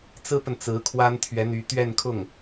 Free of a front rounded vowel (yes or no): no